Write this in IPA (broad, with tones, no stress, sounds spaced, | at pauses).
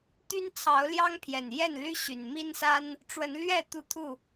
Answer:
t̪ y˦ n t͡sʰ ɑ˨˦ ʊ̯ l j ɑ˦ ŋ pʰ j ɛ˨˩ n j ɛ˥˨ n l y˦ ɕ y˨˩ n m i˦ n s a˦ n | ʈ͡ʂ w ə˨˦ n l ɥ ɛ˥˨ t̪ u˥˨ t̪ʰ u˥˨